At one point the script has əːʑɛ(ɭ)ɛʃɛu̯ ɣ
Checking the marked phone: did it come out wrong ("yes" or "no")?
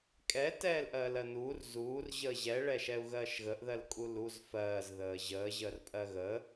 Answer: no